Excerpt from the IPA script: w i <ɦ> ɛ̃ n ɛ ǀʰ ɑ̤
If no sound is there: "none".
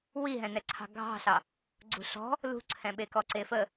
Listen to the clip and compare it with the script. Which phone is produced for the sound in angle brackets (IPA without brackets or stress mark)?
ɦ